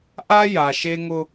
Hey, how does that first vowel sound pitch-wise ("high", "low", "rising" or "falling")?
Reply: high